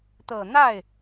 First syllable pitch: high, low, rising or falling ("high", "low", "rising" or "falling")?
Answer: low